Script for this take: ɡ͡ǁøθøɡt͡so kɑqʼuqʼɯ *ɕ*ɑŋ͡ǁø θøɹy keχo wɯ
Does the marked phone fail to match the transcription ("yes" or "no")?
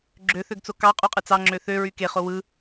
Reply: yes